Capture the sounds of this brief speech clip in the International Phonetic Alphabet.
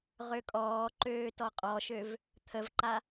ʁ ø kʼ ɔː ǃ øː t ɔ qʼ ɔ ʃ ø v | t̪ʰ ə v ǃ a

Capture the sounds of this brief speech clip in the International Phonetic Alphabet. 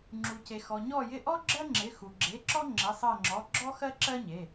ŋ͡ǁ u˩ c e˩ x ɔ˩ ɲ ɔ˦˨ j ɪ˦˨ ʔ ɔ˥ ɡ͡ǁ ɜ˥ ŋ͡ǁ ɪ˩˧˩ x u˩ ɡ͡ǁ e˩˧˩ ǁ ɔ˥ ŋ͡ǁ ɪ˩˧˩ sˤ ɜ˦˨ ŋ͡ǁ ɔ˩˧˩ ɡ͡ǁ ɔ˥ x ɜ˥ ǁ ɜ˥ ɲ e˩˧˩

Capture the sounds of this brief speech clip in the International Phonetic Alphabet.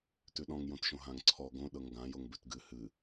t ʉ ɗ ɔ̃ ŋ j õ t ʃ õ ɦ ã ŋ ǀʰ ɔ ɡ õ ɗ ɤ ŋ ɡ ã j o ŋ b ʉ t ɡ ɨ h ɨ

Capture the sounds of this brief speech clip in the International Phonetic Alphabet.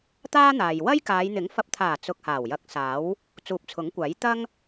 t̪ aː˥ n̪ aː˨ j w ɐ˥ j k aː˨˧ j n̪ ɪ˨˥ ŋ f ɐ˨ p̚ t̪ʰ aː˨˩ t͡s ʊ˧ k̚ h aː˨˩ w j ɐ˨˥ k̚ s aː˨˥ w | t͡s uː˨ p̚ t͡sʰ ʊ˨˥ ŋ kʷ aː˨˥ j t̪ ɐ˥ ŋ

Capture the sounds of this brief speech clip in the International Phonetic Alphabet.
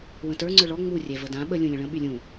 w ə̃ t ə˞ ŋ͡ǀ ə˞ ɭ ɔ ŋ͡m u rʲ ɛ v ə d ã ɓ ə lʲ ũ lʲ ə̃ ɭ ə̃ ɓ y lʲ ũ

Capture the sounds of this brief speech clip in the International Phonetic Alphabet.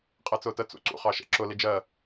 qʼ æ t͡s ʊː t ə t͡s ṵ ǀ ṵ χ ɑ ʃ ɛ̰ ǁ ʊ l i d͡ʒ ɜ

